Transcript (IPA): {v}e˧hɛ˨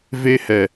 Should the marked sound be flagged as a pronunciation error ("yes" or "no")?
no